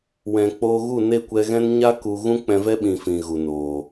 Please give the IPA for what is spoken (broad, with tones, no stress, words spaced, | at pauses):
wɛ̃˨k͡poː˧ ɣu˦˨ne˦˨kʷɛ˧ɣɛ̃˦n ɲa˦ ku˧ ɣũ˦k͡pɛ̃˧vɛ˦ ɓĩ˧fĩ˨ɣu˨noː˨